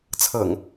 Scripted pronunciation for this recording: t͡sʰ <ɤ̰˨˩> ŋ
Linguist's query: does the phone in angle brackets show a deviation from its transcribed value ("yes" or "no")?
no